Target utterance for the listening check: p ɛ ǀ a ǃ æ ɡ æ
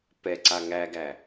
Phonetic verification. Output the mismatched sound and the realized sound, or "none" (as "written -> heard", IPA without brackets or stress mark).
ǃ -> ŋ